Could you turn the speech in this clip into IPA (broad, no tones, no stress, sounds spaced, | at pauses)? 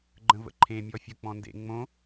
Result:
ɡ͡ǃ ə̃ v ə̰ ǃʰ ẽ mʲ ɔ fʲ ə k͡p ɔ̃ n d ḛ ŋ͡m õ